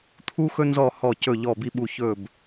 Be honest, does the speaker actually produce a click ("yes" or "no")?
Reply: no